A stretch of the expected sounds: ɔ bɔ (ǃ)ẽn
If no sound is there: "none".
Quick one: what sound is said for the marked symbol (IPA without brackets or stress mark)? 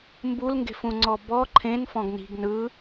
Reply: ǃʰ